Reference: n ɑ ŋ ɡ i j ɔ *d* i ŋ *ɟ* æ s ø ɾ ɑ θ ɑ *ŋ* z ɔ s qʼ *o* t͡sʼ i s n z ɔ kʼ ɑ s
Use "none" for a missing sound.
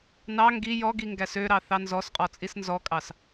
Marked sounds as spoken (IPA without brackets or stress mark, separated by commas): ɡ, ɡ, n, ɔ